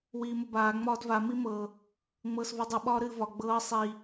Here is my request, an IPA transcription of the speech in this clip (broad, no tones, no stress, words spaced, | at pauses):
wiːməbaː ŋ͡mɒːdva mimɤ | ŋ͡mɤːsvudˤɨ ɓɒːɾɨːvɒ ɡ͡bɤː sˤi